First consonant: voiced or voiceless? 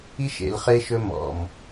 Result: voiceless